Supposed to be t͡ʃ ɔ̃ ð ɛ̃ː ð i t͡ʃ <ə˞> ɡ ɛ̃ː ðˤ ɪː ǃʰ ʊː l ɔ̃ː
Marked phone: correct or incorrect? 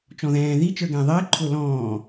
correct